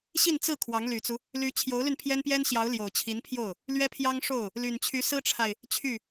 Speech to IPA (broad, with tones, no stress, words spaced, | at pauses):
ɕi˥˧nt͡sɹ̩˥˩ kʰwɑ˧˥ŋly˨˩t͡su˦ | ly˧˥t͡ɕʰjo˧˥ʊ̯ly˧n pʰjɛ˥npjɛ˥nɕjɑ˧˥ʊ̯ ljo˨˩ʊ̯t͡ɕʰi˧˥npʰjo˥˩ʊ̯ | lɥɛ˥pʰjɑ˥ŋʂo˥˩ʊ̯ | ly˨˩nt͡ɕʰy˧˥ sɹ̩˥ʈ͡ʂʰa˨ɪ̯ | t͡ɕʰy˥˩